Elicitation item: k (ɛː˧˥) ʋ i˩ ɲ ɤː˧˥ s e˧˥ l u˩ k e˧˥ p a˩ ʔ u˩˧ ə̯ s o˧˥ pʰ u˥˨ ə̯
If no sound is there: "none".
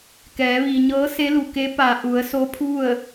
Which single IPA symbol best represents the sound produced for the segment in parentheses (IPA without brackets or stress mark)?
ɛː˩˧